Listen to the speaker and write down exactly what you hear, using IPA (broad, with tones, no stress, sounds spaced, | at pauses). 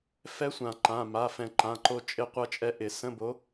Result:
f ɛ˧˥ sʷ ã˨˩˦ ǃ ã˩˧˩ m a˩˧˩ f ɛ̃˨˩˦ ǃ ã˩˧˩ ǃ o˧ t͡ʃʼ ɪ˧˥ qʷ ʌ˧ t͡ʃʼ ɛ˧ ʔ ɪ˨˩˦ s ə̃˧˥˧ b o˧˥